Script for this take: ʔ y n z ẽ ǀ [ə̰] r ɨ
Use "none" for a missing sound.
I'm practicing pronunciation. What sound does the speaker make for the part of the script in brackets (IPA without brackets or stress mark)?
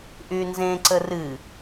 ə